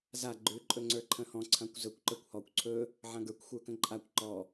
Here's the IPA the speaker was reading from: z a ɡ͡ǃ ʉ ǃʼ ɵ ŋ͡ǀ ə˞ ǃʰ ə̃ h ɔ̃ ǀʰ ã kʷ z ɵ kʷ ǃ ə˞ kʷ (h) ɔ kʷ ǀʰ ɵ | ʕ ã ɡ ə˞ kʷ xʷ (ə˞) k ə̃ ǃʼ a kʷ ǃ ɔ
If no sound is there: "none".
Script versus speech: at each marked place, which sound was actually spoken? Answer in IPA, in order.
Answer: h, ə˞

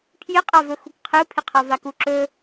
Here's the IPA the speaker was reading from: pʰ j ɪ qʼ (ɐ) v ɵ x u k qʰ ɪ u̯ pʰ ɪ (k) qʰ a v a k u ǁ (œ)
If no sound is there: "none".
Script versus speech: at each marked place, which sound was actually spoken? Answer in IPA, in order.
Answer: a, none, ɵ

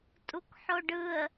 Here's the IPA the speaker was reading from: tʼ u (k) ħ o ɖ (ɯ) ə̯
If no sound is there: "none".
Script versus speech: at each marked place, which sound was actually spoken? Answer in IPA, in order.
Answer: k, ɯ

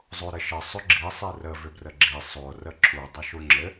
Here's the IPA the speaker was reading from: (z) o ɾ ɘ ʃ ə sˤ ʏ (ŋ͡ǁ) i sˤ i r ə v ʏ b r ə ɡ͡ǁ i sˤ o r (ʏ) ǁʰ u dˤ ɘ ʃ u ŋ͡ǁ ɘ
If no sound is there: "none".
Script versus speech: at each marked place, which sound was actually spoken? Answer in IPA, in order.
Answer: zˤ, ɡ͡ǁ, ə

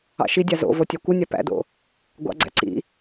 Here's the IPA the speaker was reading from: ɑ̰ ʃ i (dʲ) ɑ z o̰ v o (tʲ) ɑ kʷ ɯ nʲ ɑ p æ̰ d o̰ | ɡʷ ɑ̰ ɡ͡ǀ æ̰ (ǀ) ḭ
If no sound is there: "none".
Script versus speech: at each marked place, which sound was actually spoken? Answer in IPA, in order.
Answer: dʲ, tʲ, ǀ

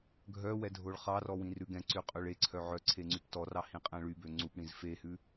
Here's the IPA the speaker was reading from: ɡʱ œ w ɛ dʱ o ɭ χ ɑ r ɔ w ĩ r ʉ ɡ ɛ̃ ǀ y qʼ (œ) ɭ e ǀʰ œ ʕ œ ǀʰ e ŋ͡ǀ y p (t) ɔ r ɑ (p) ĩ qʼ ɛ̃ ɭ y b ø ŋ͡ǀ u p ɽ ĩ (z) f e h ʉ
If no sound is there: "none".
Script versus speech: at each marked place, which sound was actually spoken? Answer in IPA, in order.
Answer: ø, t, h, z

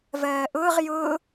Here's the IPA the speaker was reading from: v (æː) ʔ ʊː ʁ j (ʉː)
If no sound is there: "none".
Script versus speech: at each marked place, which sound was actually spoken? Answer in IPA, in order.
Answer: ɜː, ʊː

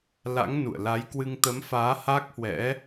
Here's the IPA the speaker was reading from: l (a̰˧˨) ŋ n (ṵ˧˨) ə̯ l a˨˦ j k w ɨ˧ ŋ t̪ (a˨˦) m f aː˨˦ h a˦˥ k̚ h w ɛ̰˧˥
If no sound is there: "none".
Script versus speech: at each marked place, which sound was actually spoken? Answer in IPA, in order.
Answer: a̰˧˥, ṵ˧˨, ə˨˦

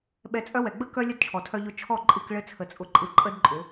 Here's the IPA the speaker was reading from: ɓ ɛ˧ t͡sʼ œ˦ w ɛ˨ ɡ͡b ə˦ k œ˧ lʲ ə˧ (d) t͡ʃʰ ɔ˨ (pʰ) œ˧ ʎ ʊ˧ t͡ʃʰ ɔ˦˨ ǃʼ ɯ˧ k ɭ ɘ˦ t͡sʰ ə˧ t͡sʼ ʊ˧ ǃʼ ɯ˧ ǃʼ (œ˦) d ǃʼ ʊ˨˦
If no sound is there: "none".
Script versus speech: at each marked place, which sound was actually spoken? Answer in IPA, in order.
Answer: d, tʰ, ə˦

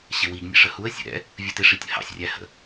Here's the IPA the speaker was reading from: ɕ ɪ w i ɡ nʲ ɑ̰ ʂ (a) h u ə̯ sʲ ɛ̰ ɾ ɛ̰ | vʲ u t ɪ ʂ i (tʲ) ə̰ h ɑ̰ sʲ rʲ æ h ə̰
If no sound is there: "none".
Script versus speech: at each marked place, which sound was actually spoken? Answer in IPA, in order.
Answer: ə, tʲ

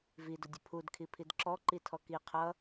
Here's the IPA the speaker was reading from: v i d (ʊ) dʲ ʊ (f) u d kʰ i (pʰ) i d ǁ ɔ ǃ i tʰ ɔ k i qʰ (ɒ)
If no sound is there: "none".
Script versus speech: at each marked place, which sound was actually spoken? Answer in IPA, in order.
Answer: ʊ, pʰ, pʰ, ʌ

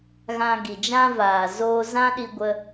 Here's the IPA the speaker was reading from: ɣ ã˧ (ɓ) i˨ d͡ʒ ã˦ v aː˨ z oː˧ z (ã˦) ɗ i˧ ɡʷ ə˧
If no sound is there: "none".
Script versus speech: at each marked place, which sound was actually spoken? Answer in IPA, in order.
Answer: ɡ, ã˦

